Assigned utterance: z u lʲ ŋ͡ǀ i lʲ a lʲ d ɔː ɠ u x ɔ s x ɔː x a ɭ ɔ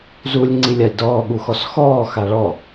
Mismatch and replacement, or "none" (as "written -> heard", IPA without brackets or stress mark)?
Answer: none